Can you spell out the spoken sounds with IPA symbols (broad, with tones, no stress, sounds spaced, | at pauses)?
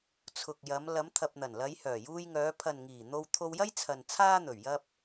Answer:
t͡sʰ ʊ˨ k̚ j ɐ˨˧ m l ɐ˨˧ m t̪ʰ ɐ˨ p̚ n̪ ɐ˨˩ n l ɐ˨˧ j h œː˨˩ j uː˧ j ŋ œː˨˧ pʰ ɐ˨ n ŋ iː˨˩ n̪ o˧ w t̪ʰ o˧ w j ɐ˥ j t͡sʰ ɐ˨ n t͡sʰ aː˥ n̪ ɵ˨˩ ɥ j ɐ˧ p̚